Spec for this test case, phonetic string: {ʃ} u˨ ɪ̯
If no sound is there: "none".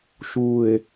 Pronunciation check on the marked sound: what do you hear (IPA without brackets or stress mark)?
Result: ʃ